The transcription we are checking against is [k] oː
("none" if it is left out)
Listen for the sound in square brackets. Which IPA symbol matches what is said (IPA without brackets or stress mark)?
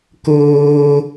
k